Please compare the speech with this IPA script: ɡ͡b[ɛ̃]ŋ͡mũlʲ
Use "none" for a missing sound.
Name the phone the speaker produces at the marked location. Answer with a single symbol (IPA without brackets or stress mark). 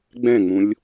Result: ɛ̃